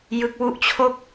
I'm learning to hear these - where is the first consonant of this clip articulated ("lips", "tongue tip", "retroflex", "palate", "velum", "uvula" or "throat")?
palate